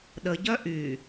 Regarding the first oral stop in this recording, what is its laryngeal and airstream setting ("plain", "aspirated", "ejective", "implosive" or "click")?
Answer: implosive